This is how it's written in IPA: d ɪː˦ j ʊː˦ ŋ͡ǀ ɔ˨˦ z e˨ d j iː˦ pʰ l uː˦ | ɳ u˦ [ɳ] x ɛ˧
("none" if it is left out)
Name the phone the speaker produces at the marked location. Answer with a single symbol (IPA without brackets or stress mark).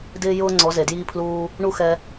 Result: none